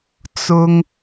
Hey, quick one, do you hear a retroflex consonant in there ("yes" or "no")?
no